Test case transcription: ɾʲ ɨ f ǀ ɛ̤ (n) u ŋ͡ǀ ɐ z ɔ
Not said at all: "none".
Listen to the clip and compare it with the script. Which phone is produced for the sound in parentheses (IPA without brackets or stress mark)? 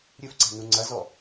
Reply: n